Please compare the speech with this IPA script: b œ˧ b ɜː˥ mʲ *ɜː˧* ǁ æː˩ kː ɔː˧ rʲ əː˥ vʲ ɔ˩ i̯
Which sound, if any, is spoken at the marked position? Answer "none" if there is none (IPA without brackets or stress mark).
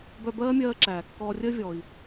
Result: ɜː˧